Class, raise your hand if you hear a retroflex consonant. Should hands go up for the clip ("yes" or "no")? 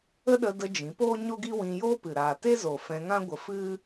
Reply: no